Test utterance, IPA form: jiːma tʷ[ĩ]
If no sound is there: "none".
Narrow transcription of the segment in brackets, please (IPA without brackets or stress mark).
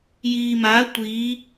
i